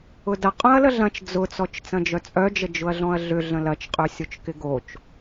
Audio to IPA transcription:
ʊ d ɐ qʼ œ̃ ɐ̯ l ə ɮ ɐ̃ t͡ʃ d͡z ʊ t͡s ɔ t͡ʃ t͡s ɐ̃ d͡ʒ œ t͡sʼ œ d͡ʒ ə d͡ʒ ʊ ɐ̯ ɮ ɔ̃ ɐ̯ ɮ ʏ ɮ ə̃ l ɐ t͡ʃ qʼ ø sʲ o t͡ʃ k ɪ ɡ o t͡ʃ

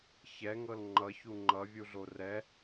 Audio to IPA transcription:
ç ɛ ŋ ɤ l ŋ͡ǃ ʌ ç u ŋ͡ǃ ʌ vʲ u ɮ o r ɛ

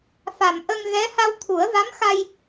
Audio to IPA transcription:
f a˨˩ m ʔ ə˧ ŋ ɣ ɛ˧˥ h a˧ w t̪ʰ u˨˩˦ ə̯ v a˧˥ m x a˧ j

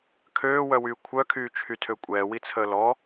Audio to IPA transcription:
kʰ øː w œ w yː kʷʰ œ kʰ yː t͡ʃʰ y tʰ ø kʷʼ ɛː w i t͡sʰ əː l ɔ

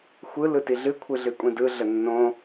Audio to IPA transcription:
xʷ ɯ l ɯ t i ɮ ɨ kʷʰ ɨ ɮ ɨ kʷʼ ĩ d ɯ ɮ ə nː õ

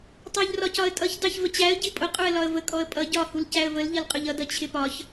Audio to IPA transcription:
tˤ æ ʎ r ɒ c ɒ ə̯ tʼ ʌ ç d ɑ ç v ə t͡ɕ æ ə̯ ɟ i pʼ ʊ qʼ u ə̯ l ɒ ə̯ v ə kʼ ɔ ə̯ pʼ ʌ ɟ ɒ h u l c æ ə̯ v ə l ʎ ʌ l qʼ ʊ ʎ ʌ d ʌ t͡ɕʰ ɪ p ɒ ç

